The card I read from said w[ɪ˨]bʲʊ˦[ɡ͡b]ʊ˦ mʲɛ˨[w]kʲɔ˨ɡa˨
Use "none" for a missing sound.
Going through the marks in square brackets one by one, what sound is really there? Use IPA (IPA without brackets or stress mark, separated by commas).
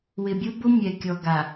ɪ˨, b, none